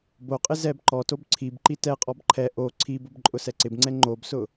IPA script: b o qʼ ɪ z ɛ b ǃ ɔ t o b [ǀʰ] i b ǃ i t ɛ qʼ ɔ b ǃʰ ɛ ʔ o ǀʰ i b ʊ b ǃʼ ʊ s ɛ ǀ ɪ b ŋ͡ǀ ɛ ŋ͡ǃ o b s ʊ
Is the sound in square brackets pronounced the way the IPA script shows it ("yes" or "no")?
yes